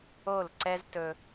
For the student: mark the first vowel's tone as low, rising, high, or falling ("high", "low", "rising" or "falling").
falling